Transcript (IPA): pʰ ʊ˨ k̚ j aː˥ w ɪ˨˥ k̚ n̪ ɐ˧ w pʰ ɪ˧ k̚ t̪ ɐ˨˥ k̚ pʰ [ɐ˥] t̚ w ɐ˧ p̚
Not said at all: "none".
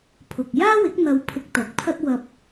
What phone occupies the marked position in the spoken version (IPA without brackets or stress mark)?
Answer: ɐ˥